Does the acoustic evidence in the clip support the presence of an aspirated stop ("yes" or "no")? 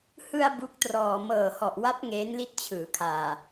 yes